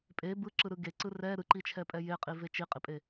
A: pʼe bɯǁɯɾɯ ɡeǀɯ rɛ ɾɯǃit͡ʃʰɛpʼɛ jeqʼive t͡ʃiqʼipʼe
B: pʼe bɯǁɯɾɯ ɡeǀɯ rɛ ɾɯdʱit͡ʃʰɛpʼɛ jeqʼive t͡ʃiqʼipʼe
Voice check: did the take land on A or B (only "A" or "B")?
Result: A